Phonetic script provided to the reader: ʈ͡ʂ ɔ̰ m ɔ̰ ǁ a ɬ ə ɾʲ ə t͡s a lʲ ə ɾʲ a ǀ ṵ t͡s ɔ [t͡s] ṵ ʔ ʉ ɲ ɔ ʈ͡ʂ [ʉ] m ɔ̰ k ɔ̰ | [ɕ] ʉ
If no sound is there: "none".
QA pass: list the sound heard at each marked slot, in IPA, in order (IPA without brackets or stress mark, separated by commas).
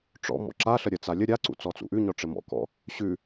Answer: t͡s, ɘ, ɕ